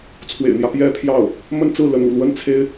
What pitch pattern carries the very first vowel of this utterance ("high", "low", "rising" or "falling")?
low